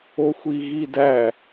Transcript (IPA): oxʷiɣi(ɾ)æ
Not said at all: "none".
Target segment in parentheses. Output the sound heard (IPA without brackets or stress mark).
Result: d